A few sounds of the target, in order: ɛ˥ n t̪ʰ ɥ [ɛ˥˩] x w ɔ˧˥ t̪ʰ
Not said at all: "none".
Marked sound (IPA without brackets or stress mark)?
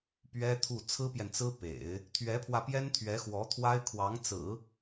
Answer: ɛ˧˥